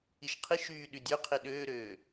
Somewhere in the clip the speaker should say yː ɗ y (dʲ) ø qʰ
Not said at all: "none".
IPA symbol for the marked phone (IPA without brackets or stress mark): dʲ